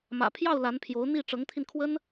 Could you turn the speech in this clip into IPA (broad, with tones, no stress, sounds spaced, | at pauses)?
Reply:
m ä̰˨˩ pʰ j ɑ˥˩ ʊ̯ l a˧˥ n pʰ j o˧˥ ʊ̯ n̪ i˥˩ ʈ͡ʂ ɤ˧˥ ŋ t̪ʰ i˧ n kʰ w ə˥ n